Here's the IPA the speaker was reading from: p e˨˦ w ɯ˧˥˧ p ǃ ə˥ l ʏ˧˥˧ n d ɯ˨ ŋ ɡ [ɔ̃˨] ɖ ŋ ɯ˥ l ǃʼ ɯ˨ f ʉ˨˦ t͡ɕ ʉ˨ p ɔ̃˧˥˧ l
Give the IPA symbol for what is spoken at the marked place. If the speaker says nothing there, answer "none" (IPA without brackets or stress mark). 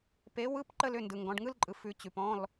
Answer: ɔ̃˨˦